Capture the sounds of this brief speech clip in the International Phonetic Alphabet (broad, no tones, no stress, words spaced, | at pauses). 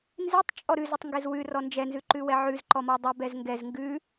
nzetˤ t͡ʃʼɔɾʉ zɪtˤŋɡezwʉ rɔnd͡ʒɛ nzʉǃʉwɛʕʉz ǃɔmɔdˤɛb ɛzŋɡɛz ŋɡʉ